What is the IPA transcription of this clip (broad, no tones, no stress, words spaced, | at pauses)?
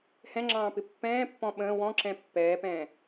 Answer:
hɛ̃ŋ͡ǁɑ̃ːpɪ pːɛ̃ːpːɔ̃ ɓə̃ː wɔ̃ǁɛ̃ pːɛːpɛ̃ː